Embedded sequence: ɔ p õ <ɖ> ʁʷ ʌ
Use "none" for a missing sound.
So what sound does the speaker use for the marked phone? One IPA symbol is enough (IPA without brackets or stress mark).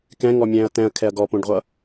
ɖ